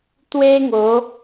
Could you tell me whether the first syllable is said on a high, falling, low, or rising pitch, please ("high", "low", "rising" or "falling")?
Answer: high